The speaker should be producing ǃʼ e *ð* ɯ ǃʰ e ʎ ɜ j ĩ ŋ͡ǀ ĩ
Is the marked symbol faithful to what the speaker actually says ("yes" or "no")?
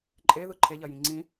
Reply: yes